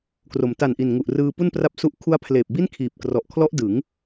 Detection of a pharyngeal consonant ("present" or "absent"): absent